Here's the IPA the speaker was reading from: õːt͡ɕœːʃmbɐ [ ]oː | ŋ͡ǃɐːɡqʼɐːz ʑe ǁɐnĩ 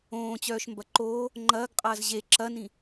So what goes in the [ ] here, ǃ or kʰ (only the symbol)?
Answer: ǃ